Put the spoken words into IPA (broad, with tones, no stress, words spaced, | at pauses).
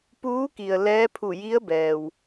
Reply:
puː˧˥ki˩ə̯ lɛː˧˥pʰu˧˩ji˧˥ə̯bɛː˩w